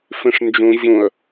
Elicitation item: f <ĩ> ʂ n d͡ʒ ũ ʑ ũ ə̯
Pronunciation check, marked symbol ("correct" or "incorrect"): correct